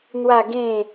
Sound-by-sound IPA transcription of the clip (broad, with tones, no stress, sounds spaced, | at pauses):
n̪ w a˥˧ ɡ ẽ˥˧